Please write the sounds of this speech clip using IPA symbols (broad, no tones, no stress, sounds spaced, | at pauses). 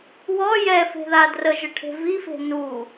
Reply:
w ɔ j ɛ f e̤ ð a d r ə ʒ ə ʈʰ e̤ v i f e̤ n u